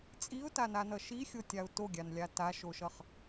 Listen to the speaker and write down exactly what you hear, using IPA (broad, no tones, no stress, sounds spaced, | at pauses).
t͡sʼ i ʊ̯ t a n a n ʌ ʃ i xʲ o tʲ a ʊ̯ t o ɡʲ a n lʲ a t a ʃ o ʃ ʌ χ